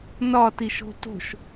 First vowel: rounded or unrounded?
rounded